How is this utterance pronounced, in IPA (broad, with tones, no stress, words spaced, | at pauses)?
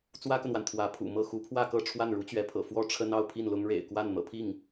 t͡swä˥kə˨nwa˩n t̪ʰwä˧˥pʰṵ˨˩mɤ˥˩ xu˧˥pʰwä˥˧kɤ˥˧ ʈ͡ʂʰwa˥˩nɻu˧˥t͡ɕɥɛ˧˥pʰɤ̰˨˩ fwɔ˥˩ʈ͡ʂʰə˥n ɑ˥˧ʊ̯pʰi˥˩nlʊ˥ŋ ɻḛ˨˩ɪ̯kwa˥˩n n̪ɤ̰˨˩pʰi˥˩ŋ